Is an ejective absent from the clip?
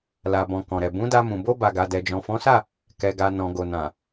yes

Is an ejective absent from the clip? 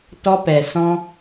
yes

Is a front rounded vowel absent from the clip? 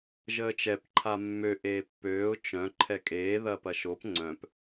no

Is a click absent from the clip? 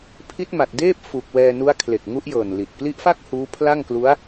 yes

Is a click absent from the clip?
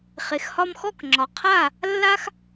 no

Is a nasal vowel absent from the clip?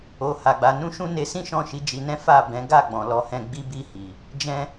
no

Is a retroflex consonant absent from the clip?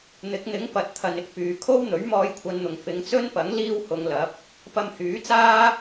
yes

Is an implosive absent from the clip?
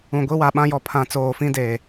no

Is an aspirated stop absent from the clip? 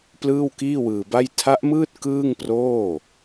no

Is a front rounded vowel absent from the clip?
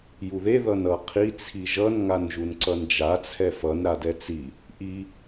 yes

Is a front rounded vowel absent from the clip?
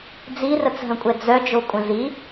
no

